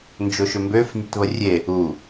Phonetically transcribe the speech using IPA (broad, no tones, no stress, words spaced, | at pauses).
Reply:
nd͡ʒoʃʏmbøf nʲetβərʲe | u